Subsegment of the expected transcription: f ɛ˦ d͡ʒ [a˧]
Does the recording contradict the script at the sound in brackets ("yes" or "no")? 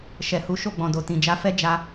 no